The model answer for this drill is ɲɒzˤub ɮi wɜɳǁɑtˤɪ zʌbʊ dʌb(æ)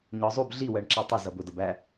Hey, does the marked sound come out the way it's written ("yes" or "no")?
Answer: yes